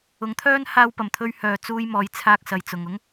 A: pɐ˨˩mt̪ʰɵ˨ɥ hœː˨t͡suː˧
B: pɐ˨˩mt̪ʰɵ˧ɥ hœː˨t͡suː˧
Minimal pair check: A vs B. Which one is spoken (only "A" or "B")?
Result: B